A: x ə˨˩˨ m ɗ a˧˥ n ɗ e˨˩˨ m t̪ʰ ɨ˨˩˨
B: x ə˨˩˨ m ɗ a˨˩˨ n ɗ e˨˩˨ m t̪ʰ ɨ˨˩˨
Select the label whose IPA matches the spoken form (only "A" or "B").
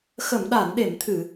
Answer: B